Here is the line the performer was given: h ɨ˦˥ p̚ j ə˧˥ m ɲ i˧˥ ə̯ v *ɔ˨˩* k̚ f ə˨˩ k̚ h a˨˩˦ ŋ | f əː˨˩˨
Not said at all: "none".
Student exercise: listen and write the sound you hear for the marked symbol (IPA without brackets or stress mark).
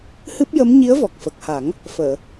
ɔ˨˩